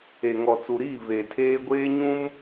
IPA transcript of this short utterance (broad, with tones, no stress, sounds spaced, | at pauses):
e˨ ŋ ɔ˨ t͡s u˨ ɾ iː˦˨ v e˨ tʰ eː˦ ɡʷ eː˦ ɲ ũ˦ m